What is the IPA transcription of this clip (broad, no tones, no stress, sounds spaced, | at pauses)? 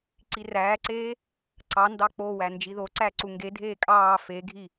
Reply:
ǀ i r æː ǀ eː | ǀ ɑ n d ɑ k͡p o w æ n d͡ʒ i ð o ǀ æ ǀ u ŋ ɡ e dʱ eː kʼ ɑː f e ɡʱ i